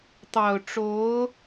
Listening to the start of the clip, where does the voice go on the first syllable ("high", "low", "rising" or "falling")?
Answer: low